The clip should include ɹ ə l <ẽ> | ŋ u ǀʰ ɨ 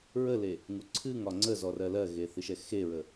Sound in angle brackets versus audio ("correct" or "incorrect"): incorrect